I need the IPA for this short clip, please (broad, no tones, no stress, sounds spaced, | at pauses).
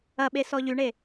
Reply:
ɐ ɓ e s ɔ ʎ y ɳ e